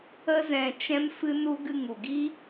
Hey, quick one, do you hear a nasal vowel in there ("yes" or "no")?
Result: yes